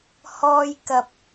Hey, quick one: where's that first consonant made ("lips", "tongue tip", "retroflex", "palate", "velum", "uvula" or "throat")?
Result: throat